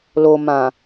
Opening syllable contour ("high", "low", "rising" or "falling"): low